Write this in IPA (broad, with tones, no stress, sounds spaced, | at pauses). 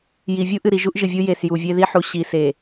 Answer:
j i˨ vʲ u˦ ʔ ɨ˨ ɾ i˨ ʒ u˦ ʔ ʒ ɨ˨ vʲ u˦ j e˨ s j u˨ vʲ e˦ ð i˦ ħ u˨ ɕ i˨ s e˨